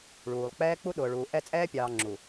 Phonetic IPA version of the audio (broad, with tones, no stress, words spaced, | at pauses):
ɭuː˨lˠ k͡pɛː˦k͡pu˦ ɗʊː˨ɭuː˨ ʔɛ˦˨t͡sʼɛː˦pʲɑː˨ ŋ͡ǁu˨